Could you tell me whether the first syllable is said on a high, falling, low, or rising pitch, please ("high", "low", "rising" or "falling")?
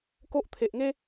high